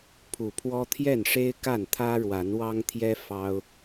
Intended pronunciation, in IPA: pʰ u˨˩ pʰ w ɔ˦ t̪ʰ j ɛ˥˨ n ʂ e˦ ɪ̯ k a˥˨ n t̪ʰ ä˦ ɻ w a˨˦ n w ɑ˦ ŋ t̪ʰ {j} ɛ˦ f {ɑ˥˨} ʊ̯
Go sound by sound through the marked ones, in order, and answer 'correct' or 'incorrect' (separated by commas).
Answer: correct, incorrect